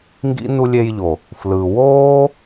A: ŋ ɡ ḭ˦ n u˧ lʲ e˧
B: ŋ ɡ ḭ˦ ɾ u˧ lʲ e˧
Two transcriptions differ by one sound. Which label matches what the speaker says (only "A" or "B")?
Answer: A